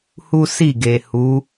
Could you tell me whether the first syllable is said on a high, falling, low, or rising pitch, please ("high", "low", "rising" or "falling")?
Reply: high